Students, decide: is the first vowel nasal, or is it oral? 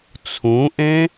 nasal